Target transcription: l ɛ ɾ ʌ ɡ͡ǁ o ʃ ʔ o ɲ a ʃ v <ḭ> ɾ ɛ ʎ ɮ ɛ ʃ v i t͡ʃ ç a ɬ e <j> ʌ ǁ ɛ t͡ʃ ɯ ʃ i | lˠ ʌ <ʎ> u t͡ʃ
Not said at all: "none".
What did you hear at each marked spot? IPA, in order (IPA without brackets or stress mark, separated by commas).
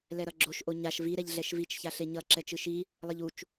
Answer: i, ɲ, ʎ